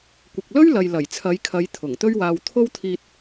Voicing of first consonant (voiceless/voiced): voiceless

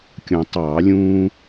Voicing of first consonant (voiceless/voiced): voiceless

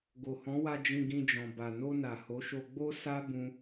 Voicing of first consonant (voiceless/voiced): voiced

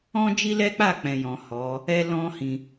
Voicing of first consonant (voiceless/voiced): voiced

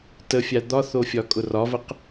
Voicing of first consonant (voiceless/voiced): voiceless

